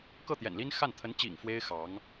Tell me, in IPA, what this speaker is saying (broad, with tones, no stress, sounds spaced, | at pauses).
k ɤ˥˩ t̪ j ɛ̰˨˩ n l i˥ n x a˥˩ n t̪ʰ ə˧˥ n t͡ɕ ḭ˨˩ ŋ f w e˥ ɪ̯ x ɑ˧˥ ŋ